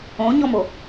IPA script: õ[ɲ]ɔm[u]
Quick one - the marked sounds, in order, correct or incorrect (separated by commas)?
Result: correct, incorrect